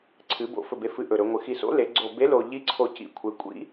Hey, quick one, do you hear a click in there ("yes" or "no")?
yes